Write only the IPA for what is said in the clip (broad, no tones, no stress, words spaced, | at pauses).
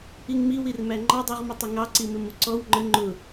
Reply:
iŋmi wirmæŋ͡ǃɑ dˤuʁmətˤɪŋɑ ǀimɪmuǀɔw ŋ͡ǃə ŋ͡ǃʊ